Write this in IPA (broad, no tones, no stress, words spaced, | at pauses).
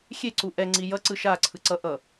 xʲeǀu ʔɛŋ͡ǀi jʌ ǀɯʃa ǀʰɯǀʌ ʔʌ